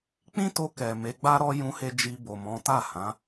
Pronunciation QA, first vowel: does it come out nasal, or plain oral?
nasal